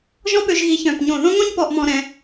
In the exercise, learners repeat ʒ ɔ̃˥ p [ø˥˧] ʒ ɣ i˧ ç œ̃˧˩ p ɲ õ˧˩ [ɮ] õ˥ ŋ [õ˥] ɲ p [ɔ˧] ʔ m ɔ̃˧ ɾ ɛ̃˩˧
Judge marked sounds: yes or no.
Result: no, no, yes, yes

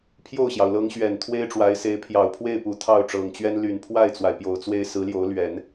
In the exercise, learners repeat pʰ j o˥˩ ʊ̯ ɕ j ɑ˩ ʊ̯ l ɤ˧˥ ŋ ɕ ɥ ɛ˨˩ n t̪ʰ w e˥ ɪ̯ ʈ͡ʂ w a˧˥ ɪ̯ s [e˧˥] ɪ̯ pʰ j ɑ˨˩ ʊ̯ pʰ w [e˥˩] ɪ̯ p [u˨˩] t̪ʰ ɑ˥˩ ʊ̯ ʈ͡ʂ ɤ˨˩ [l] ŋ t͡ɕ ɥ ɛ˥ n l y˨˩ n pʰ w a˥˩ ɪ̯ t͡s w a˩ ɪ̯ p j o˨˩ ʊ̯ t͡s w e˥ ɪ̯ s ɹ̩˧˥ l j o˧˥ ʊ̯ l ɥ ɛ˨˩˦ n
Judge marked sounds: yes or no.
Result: yes, yes, yes, no

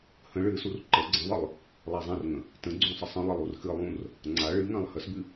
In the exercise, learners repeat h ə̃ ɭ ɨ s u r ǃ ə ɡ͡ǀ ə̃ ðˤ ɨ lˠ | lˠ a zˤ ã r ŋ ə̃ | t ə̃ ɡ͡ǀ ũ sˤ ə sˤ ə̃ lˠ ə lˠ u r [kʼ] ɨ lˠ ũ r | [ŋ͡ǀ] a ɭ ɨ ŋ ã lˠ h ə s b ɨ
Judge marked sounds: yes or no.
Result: no, yes

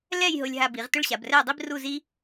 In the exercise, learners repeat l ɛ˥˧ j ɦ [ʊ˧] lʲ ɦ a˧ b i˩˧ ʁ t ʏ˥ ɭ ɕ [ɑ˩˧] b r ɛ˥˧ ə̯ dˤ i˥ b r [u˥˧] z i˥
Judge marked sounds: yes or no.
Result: yes, no, yes

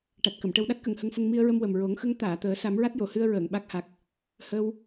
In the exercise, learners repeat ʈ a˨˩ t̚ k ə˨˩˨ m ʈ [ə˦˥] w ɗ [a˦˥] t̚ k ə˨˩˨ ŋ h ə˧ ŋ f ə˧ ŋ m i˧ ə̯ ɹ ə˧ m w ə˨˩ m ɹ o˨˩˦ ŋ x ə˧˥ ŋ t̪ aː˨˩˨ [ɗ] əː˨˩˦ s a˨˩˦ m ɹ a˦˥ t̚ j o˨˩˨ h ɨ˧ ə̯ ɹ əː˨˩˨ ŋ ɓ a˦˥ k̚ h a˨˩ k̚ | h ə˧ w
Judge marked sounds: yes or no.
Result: no, yes, no

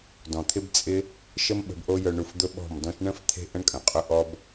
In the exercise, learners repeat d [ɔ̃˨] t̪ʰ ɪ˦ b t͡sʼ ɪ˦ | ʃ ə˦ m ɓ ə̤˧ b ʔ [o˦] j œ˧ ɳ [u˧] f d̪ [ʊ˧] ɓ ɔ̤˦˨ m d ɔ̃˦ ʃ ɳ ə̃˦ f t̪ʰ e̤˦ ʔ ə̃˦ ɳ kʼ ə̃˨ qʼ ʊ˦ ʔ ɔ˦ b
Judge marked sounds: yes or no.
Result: yes, yes, yes, no

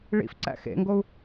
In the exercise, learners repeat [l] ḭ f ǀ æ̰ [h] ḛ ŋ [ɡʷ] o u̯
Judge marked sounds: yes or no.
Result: no, no, no

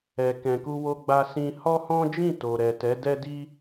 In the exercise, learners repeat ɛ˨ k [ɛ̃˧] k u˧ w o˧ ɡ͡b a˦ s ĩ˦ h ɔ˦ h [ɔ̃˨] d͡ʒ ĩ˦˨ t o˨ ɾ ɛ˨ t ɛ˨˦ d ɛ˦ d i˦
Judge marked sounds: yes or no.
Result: no, no

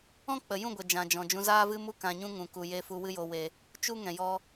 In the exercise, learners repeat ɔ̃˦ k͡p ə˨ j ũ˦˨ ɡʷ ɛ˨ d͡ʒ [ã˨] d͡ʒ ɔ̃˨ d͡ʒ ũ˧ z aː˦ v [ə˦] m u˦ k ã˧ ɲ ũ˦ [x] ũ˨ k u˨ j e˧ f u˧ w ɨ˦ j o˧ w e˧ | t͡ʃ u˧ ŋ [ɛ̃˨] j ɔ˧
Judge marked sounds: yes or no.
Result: yes, no, no, yes

